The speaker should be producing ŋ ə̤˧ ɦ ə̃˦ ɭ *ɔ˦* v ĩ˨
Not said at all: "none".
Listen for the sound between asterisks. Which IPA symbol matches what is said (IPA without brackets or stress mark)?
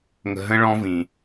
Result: ɔ̃˦